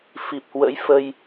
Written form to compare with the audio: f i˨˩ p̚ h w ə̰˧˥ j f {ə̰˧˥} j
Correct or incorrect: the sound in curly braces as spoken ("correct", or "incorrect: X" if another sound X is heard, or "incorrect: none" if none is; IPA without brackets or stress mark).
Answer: incorrect: ə˧